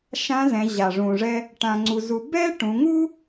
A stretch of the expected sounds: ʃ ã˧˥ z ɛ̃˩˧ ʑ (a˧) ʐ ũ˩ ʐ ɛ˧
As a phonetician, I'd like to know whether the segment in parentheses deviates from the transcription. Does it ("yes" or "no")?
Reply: yes